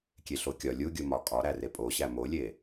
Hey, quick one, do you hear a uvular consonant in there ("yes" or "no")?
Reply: no